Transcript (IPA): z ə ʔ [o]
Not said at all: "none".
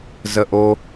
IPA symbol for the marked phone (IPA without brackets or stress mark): o